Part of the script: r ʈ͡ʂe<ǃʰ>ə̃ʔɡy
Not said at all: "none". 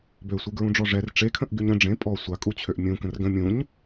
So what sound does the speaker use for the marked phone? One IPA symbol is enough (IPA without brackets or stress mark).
kʰ